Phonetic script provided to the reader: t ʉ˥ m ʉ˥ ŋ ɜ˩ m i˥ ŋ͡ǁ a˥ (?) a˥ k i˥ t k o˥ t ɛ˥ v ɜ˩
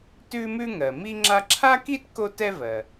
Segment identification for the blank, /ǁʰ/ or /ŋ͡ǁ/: ǁʰ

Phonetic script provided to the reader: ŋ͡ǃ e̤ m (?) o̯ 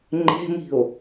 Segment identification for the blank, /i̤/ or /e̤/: i̤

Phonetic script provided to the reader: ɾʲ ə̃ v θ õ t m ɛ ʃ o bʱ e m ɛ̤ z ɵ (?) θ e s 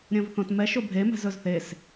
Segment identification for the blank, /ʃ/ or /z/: z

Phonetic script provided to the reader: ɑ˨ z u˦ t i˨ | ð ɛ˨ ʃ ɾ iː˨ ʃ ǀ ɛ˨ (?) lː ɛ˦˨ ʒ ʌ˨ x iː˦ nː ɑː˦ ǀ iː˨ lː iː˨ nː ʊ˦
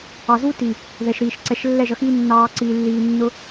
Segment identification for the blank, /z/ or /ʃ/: ʃ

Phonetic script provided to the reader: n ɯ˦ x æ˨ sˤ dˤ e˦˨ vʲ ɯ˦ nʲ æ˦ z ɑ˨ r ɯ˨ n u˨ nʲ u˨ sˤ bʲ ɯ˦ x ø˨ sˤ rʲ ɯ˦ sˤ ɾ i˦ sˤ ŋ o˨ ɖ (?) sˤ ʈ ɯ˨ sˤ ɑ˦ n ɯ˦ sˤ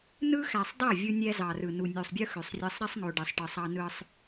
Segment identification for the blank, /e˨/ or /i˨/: e˨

